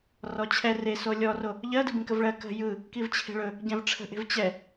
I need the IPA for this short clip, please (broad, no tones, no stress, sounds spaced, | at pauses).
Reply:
r ɔ t͡ɕʰ ɛ r e s o lʲ ɔ r o | ʎ ɜ d ɯ b ĩ k ə v ɭ ɜ k ə̤ j ɯ | k i v t͡ɕʰ e̤ ɭ ɵ | ɟ ɛ̃ v ʈ͡ʂʰ ə̤ ʔ e̤ v t͡ɕ ɛ